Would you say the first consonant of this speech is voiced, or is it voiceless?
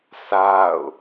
voiceless